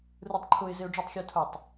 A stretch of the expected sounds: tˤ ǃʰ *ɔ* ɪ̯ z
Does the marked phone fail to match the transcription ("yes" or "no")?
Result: yes